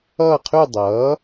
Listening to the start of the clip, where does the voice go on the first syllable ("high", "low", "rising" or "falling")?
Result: falling